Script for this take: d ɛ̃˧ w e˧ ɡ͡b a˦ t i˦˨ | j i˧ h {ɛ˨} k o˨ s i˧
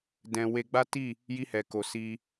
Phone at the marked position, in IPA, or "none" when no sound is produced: ɛ˨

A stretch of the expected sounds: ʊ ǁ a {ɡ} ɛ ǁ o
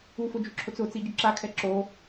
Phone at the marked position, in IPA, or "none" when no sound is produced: kʰ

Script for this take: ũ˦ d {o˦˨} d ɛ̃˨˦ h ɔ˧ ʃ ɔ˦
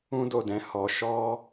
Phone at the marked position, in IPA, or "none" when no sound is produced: o˦˨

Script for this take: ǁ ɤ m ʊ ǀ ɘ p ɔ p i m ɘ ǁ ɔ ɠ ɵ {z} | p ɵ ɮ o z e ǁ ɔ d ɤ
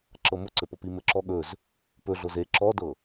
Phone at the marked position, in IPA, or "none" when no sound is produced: z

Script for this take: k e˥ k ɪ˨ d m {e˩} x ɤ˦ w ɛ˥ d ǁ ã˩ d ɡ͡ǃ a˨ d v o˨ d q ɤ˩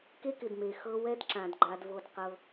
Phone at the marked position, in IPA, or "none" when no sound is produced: e˩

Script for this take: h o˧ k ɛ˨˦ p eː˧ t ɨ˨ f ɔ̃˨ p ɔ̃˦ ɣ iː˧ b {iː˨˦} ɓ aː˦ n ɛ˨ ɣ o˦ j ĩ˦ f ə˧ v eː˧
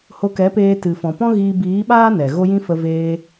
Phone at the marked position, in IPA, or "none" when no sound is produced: iː˨˦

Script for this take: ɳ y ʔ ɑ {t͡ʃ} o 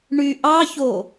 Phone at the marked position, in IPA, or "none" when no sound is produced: ç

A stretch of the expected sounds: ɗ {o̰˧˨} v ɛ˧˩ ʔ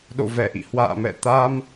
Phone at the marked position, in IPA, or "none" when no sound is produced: o̰˧˨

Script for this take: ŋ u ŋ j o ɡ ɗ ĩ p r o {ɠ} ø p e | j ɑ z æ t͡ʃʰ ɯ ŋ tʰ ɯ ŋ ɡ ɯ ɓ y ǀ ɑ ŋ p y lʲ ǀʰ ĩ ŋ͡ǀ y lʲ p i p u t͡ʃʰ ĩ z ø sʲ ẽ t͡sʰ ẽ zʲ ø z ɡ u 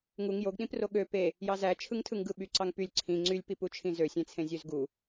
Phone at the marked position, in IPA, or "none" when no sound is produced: ɠ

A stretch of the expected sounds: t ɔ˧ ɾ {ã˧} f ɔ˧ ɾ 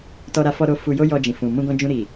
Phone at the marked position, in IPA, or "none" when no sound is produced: a˧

